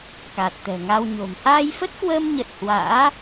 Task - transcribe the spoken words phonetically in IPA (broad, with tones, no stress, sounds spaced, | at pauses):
k a˨˩ t̚ t̪ ɛ̤˨˩ ŋ a˧ w ɲ o̤˨˩ m h aː˧ j f ə˦˥ t̚ k w əː˧ m ɲ ə˨˩ t̚ h w a̰ː˧˥